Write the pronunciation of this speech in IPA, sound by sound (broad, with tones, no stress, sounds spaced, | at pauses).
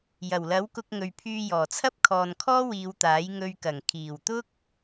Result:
j ɐ˨˩ w l ɐ˨˥ w k ʊ˧ k̚ ŋ ɵ˨ ɥ pʰ yː˧ j ɔː˨˩ t͡sʰ ɐ˥ p̚ kʰ ɔː˨ n kʰ ɔː˥ w iː˨˧ w t̪ aː˨˥ j ŋ ɵ˧ ɥ k ɐ˨˩ ŋ kʰ iː˨˩ w t̪ ʊ˥ k̚